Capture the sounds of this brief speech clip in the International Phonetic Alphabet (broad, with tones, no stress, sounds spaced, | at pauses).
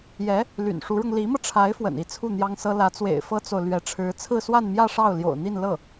j ɛ˧˥ | l y̰˨˩ n ʂ u˧˥ ɻ ʊ˧ ŋ l i˧˥ m ɤ˧ ʈ͡ʂʰ a˧˥ ɪ̯ f w ə̰˨˩ n i˧˥ t͡sʰ u˥˩ n̪ j ɑ˥ ŋ s ɤ˥ l ä˧˥ t͡s w ḛ˨˩ ɪ̯ f ɤ˥ t͡s o˨ ʊ̯ l ɥ ɛ˧˥ ʈ͡ʂʰ ɻ̩˧˥ t͡sʰ ɹ̩˥˧ s w a˥˧ n m j ä˥˧ ʂ ɑ˥˩ ʊ̯ l j o̰˨˩ ʊ̯ n̪ i˥˧ n l ɤ˥˩